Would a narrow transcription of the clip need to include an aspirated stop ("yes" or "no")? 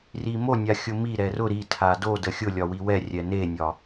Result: yes